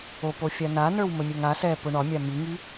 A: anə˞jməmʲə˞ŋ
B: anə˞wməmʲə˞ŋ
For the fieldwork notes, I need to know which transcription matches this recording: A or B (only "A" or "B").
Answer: B